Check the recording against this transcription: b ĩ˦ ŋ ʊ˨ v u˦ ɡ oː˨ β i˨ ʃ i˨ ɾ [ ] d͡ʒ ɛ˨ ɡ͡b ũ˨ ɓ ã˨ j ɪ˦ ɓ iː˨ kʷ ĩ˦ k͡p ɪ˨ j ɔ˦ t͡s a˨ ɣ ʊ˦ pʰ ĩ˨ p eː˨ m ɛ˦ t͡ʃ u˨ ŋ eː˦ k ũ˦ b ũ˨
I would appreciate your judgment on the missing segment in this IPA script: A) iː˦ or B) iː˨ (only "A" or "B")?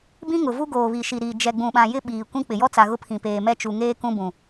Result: B